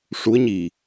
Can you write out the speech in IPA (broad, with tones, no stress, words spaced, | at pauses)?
ʂu˧˥ə̯ɲi˨˩